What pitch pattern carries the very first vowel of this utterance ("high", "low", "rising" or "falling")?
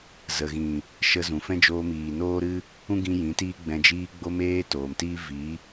low